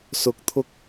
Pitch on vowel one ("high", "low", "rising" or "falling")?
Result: low